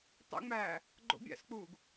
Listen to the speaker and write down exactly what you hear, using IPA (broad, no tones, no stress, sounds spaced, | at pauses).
tˤ ḛ ŋ͡m æː | ɡ͡ǃ o̰ bʲ æ̰ s k͡p uː ɡ